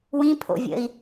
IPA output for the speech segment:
w ĩ pʰ o̰ vʲ ə̰ i̯

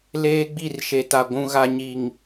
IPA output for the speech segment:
l eː˦ ɡ͡b i˦˨ r ʃ e˨ t a˨ ɡʷ ũ˨ ɣ a˨ ɲ i˨ ŋ

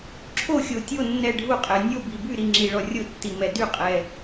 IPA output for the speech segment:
ǁʰ o˥˨ xʲ o˨ tʲ o˥˨ nː ɛ˥˨ ɖʱ u˥˨ qʼ ɛ˨ nʲ o˥˨ b i˨ b y˥˨ ɾ i˨ ŋ͡ǁ i˨ ɭ ɔ˨ rʲ o˥˨ tː i˨ m ɛ˨ d y˥˨ qʼ ɛ˨

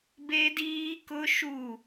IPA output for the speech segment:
b e˦ d iː˦ k ʊ˦ ʃ u˦˨

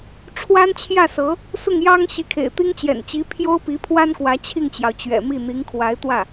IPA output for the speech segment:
ʈ͡ʂʰ w a˥ n t͡ɕʰ j ä˥˩ s ɤ˧˥ | s ʊ˥˩ ŋ j ɑ˥ ŋ ɕ i˧˥ kʰ ḛ˨˩ ɪ̯ t̪ i˥ ŋ t͡ɕ j ɛ̰˨˩ n t͡ɕ i˧˥ pʰ j o˥ ʊ̯ p i˧˥ pʰ w a˥ n k w ä˧˥ t͡ɕʰ i˥˩ ŋ t͡ɕ j ɑ˩ ʊ̯ t͡ɕ ɥ ɛ̰˨˩ m i˥˩ n̪ i˧˥ ŋ kʰ w a˧˥ ɪ̯ t̪ w ä˥˩

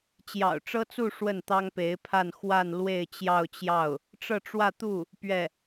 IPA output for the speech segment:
t͡ɕ j ɑ̰˨˩ ʊ̯ ʈ͡ʂ ɤ˥ t͡s u˥˧ ʂ w ə˥˩ n t̪ ɑ˥ ŋ p e˧˥ ɪ̯ pʰ a˥˧ n x w a˥˧ n l w e˥˧ ɪ̯ t͡ɕ j ɑ˥˧ ʊ̯ t͡ɕ j ɑ˥˩ ʊ̯ | ʈ͡ʂ ɤ˥˧ ʈ͡ʂ w ä˥˧ t̪ u˥˩ | p ɥ ɛ˥˩

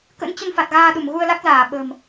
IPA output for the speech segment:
k ə̰˧˥ n t͡ɕ ə˧ n f a˨˩ t̚ ɣ aː˧ ɗ u˧˩ m ɣ u˧ ə̯ l a˦˥ k̚ z aː˧˩ ɓ ə̤˨˩ m

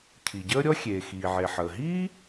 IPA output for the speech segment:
cʰ i˩ ɟ əː˥ ɾʲ ɔ˥ xʲ eː˩ x iː˩ ʕ e˩ ħ əː˩ ɦ iː˥

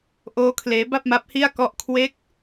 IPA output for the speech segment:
ʔ oː˦˥ kʰ l eː˦˥ b a˥˩ p̚ m a˦˥ p̚ h i˥˩ a̯ k ɔ˥˩ ʔ kʰ w e˦˥ k̚

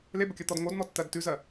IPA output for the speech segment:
l e b ə kʲ ɜ t̪ ɔ d ŋ o d n̪ ɔ tː ɜ d t ʉ z ɜ

